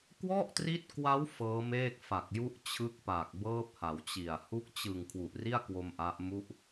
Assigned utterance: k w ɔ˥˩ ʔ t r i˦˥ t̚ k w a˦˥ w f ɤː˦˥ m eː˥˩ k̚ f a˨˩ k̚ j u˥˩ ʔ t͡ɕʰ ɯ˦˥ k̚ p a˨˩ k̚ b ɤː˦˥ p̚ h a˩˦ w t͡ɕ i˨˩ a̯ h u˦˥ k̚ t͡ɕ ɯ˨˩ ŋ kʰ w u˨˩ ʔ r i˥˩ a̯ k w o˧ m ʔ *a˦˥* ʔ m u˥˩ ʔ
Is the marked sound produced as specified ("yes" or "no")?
yes